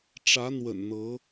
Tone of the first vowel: rising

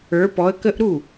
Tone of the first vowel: rising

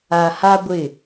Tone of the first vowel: low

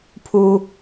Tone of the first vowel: high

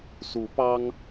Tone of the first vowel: rising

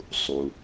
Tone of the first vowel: low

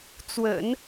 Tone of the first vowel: low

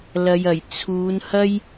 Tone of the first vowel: low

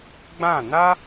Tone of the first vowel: falling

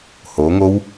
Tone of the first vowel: rising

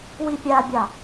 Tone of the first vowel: high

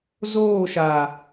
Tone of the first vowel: falling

